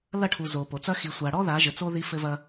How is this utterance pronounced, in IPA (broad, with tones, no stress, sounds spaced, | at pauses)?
l ɐ˦˨ ʈʰ u˨ z o˨ p o˨ t͡s ɐ˦ x i˨ sʷ a˨ ɽ ɔ˦ ð a˨˦ ʒ ɘ˨ t͡s o˦ ð i˦ f ɘ˦ v ɐ˦